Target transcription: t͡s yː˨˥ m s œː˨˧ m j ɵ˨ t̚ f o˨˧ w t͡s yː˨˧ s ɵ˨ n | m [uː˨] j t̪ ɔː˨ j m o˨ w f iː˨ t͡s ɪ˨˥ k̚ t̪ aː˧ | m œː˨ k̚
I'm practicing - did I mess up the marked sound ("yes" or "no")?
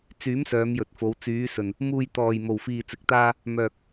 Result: no